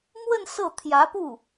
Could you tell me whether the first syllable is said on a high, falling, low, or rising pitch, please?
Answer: falling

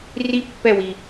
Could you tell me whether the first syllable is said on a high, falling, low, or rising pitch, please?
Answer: high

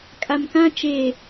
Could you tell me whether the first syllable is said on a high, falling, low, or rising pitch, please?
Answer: low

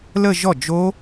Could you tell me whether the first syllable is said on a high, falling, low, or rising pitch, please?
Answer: falling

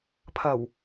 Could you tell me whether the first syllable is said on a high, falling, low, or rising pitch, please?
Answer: low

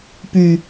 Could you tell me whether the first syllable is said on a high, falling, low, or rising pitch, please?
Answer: low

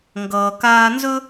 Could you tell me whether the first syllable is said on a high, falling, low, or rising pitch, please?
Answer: low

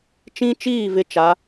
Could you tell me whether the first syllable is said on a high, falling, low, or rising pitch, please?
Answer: high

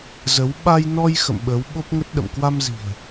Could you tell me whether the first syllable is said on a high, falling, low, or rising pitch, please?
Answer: rising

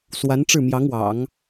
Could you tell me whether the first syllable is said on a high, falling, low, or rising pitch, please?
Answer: rising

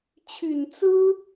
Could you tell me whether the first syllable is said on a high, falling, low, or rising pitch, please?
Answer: low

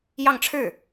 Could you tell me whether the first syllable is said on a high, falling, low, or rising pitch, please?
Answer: falling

